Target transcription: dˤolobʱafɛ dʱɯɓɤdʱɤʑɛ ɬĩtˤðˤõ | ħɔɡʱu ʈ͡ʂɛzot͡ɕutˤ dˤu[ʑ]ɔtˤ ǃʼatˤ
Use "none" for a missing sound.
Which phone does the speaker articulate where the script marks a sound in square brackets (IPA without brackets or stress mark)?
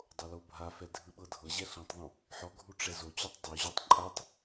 ʑ